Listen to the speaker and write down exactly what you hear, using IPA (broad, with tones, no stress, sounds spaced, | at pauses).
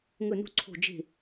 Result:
ŋ ɵ˥˧ n ṳ˥ ǀʰ o̤˥˧ d͡ʒ e̤˥˧